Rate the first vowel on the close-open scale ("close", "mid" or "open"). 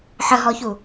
mid